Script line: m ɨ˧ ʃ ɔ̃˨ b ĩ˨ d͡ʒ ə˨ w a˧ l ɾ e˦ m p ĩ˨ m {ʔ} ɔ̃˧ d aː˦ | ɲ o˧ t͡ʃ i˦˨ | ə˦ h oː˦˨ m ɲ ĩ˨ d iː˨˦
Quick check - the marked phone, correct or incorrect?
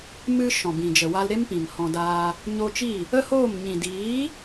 incorrect